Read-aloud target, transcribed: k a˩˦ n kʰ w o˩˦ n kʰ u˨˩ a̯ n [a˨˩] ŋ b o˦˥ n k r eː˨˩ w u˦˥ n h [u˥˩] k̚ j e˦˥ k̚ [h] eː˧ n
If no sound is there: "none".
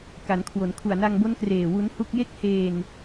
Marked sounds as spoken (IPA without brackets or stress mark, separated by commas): a˧, u˥˩, h